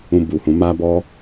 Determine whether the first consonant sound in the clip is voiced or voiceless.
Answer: voiced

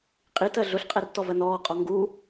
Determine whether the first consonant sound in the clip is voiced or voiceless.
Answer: voiceless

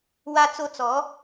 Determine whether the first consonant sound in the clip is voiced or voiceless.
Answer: voiced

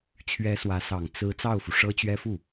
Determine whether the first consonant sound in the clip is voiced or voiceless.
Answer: voiceless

